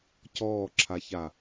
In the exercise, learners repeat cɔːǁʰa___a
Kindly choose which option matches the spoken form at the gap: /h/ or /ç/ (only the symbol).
ç